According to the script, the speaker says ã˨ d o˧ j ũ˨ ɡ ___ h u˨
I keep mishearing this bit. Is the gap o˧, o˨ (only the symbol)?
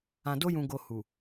o˨